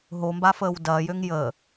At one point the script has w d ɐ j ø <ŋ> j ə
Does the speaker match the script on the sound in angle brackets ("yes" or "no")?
yes